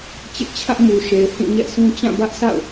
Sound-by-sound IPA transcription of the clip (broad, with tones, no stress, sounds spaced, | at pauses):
t͡ɕ ɪ˦ ʔ t͡ɕʰ ä˦ ʔ m u˨ ʃ e˨ ɪ̯ h ĩ˦˨ ɲ ɛ̰˦˨ sʰ ũ˦ t͡ɕ ã˦˨ b ä˦ ʔ sʰ a̰˦˨ ʊ̯